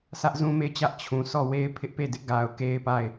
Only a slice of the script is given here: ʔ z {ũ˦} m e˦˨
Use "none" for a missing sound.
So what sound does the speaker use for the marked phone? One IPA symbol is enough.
ũ˦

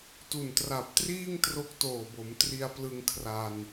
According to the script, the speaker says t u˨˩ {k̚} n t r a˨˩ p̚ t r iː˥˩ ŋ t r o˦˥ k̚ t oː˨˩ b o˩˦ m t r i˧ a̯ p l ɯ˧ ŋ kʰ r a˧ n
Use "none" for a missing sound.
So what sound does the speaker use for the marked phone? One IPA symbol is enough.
none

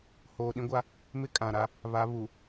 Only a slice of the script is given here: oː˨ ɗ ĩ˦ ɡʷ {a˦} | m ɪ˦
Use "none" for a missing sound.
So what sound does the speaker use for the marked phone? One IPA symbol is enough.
a˦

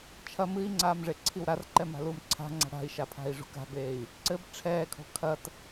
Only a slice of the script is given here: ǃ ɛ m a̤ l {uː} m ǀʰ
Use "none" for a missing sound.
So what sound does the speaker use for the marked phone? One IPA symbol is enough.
uː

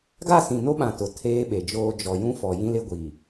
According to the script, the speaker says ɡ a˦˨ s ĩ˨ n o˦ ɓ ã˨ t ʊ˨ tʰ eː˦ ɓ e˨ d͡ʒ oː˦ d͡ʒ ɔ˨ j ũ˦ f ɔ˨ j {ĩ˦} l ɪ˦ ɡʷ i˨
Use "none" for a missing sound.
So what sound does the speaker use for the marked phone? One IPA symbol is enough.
ĩ˦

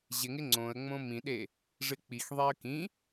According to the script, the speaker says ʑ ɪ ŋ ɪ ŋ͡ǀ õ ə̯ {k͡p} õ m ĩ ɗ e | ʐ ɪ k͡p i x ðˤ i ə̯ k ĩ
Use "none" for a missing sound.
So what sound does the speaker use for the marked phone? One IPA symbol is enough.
ŋ͡m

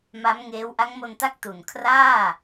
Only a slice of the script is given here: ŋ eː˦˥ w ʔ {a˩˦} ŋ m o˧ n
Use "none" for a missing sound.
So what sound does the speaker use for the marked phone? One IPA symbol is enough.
a˦˥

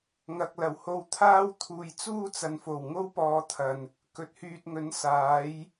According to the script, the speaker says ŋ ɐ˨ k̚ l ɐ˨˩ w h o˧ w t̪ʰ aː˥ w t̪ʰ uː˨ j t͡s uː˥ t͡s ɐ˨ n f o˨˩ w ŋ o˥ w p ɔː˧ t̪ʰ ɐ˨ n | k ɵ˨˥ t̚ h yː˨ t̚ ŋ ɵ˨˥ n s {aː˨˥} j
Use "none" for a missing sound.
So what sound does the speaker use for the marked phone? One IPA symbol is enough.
aː˨˥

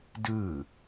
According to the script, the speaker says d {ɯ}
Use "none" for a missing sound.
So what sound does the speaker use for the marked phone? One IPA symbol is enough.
ɯ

